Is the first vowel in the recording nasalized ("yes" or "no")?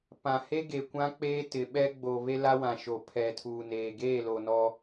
yes